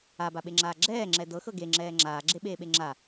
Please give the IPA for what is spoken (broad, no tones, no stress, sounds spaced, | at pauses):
a b a ɓ e ŋ͡ǁ aː ɡ͡ǁ ɛː ŋ͡ǁ ɛ d ɤ x ɤ ɡ e ŋ͡ǁ ɛː ŋ͡ǁ aː ɡ͡ǁ e ɓ eː ɓ e ŋ͡ǁ a